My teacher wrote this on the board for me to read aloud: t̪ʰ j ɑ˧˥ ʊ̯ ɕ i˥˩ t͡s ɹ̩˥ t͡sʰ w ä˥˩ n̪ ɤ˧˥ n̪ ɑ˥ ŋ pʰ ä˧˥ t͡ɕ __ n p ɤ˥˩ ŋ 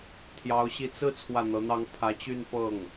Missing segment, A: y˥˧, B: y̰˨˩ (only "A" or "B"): A